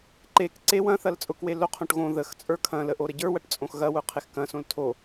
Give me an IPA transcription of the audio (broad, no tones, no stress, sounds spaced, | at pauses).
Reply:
ǃ e k ǀ e w ɐ̃ θ ɐ l t͡sʼ ʊ k w e l o qʰ õ ʈ ɣ õ ð ə x t͡sʼ ə˞ kʰ ɐ̃ l ə ʔ o ɾ ə ɟ ə˞ w ɐ ʈ t͡sʼ õ x ɣ ɐ w ʊ qʰ e x k ɐ̃ s õ l tʰ o